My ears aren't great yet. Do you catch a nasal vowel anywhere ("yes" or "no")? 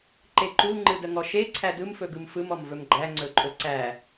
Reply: no